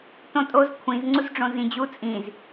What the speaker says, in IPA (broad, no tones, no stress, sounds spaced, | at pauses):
t õ tʼ o z kʷʰ ĩ z ŋ͡ǀ u z ɖ͡ʐ õ z ĩ d͡ʑ u t͡sʼ ĩ z